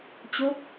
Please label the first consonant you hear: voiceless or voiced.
voiceless